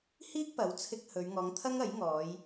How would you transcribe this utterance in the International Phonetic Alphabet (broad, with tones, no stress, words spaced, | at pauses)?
hiː˥k̚pɐ˨˥wt͡sʰɪ˧k̚ hɵ˨˧ɥ ŋɔː˨˧ŋt̪ʰɐ˥ŋɐ˨˥jŋɔː˨˧j